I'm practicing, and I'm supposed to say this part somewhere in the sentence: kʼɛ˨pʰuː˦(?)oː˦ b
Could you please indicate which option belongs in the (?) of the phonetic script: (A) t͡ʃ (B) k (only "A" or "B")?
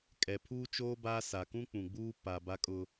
A